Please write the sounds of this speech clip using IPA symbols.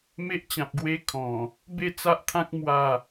m e˦ ʔ t͡ɕ ã˨ p̚ ɡ w e˧ kʰ ɔ̃˨˩ | b e˥˧ t͡s a˦ ʔ t̪ʰ ã˦ k̚ m w a˥˧

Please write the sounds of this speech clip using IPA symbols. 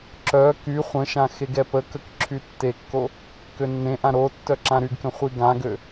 ǁ œ k y χʷ ə̃ ʃ ã x e ɡ ɛ p ə k ə k ǁʰ y tː e kː o | k ø nː ẽ ʔ ã ɾ o tː œ ǁ ã ɾ y ɡ k ə̃ χʷ i ɡ ã ɡ ø

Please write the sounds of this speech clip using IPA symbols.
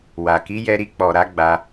w a˨ k i˨˦ j ɛ˧ ɾ i˧ k͡p ɔ˨ ɾ a˨˦ ɡ͡b a˧

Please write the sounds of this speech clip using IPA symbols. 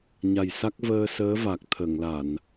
ɲ a˨˩ j s a˦˥ k̚ v əː˧ s əː˧˥ v a˨˩ k̚ t̪ʰ ə˨˩˨ ŋ l a˨˩˨ n

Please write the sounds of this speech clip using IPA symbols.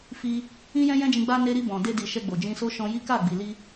f i˧ | ĩ˦ j ɛ̃˦ j ɛ̃˦ d͡ʒ ĩ˧ ɡ͡b a˧ n e˧ ɾ i˧ b ɔ̃˨ d e˧ d i˨ ʃ ɛ˧ ɡ͡b o˨ d͡ʒ ĩ˧ s o˦ ʃ ɔ̃˧ j i˦ k a˦˨ ɡ͡b i˨ l i˧

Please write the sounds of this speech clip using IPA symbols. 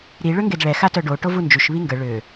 ɾ i ɭ ø ŋ ɡ e d ɭ ɛ x a t œ ɖ o ʈ o v u n d͡ʒ y ʃ β i ŋ ɡ ə ɭ ø

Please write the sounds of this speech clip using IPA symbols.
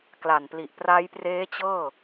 k l a˨˩ n p l i˨˩ ʔ p r a˦˥ j p r eː˦˥ t͡ɕ ɤː˥˩

